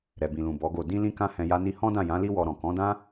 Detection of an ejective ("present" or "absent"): absent